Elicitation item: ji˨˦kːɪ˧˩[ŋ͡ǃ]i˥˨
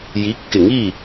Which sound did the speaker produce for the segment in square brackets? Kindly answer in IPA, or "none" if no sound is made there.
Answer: ŋ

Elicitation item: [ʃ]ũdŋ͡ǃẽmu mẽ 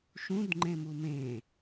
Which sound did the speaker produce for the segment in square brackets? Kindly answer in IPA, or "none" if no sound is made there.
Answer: ʃ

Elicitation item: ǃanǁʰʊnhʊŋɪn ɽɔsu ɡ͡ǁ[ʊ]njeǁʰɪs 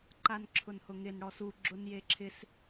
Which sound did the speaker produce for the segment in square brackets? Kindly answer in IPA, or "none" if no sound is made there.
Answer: ʊ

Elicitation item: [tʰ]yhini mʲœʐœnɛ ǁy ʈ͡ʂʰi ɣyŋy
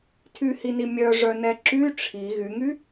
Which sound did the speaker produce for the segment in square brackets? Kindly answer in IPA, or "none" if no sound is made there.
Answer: tʰ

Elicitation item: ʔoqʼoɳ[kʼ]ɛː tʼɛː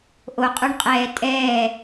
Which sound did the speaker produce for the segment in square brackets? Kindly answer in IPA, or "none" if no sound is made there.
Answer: qʼ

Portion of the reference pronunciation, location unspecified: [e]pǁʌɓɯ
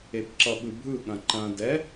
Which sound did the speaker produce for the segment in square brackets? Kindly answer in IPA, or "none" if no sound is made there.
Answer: e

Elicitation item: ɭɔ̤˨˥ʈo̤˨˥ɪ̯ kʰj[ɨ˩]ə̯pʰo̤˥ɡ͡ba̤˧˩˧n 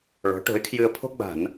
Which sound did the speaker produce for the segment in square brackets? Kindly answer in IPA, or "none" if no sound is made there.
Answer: ɨ˧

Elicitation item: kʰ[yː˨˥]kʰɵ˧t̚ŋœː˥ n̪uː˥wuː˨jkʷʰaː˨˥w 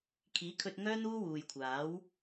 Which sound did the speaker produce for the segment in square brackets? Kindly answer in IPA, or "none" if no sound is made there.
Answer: iː˨˥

